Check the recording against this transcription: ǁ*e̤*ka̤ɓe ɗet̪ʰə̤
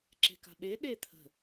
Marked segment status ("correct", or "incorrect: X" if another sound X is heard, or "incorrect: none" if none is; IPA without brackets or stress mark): correct